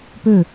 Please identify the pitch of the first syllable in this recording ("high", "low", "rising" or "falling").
falling